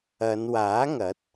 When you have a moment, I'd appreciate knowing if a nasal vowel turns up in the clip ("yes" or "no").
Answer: no